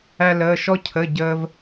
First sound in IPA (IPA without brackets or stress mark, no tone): æ